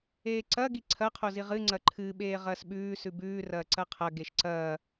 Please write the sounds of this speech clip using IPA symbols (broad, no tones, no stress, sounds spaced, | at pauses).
eː ǀ ɐ ɡ i ǀʰ ɐ qʰ o z i ʁ ɨ ŋ͡ǀ ɐ ǃʰ ɨ ɓ eː ʁ ɐː s ɓ ʉː s ʉ b ʉː r ɐː ǀ ɐ qʰ ɐ ɡ e ʃ ǀ ɐː